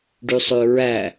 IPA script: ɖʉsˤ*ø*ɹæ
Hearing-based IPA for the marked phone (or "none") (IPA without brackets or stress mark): ø